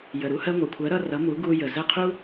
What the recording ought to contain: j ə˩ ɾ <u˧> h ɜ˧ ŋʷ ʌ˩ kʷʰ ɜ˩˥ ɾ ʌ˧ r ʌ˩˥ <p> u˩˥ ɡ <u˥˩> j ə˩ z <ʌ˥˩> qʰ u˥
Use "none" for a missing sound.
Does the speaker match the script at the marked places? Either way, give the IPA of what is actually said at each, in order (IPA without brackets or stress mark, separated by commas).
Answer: u˧, m, u˧, ə˥˩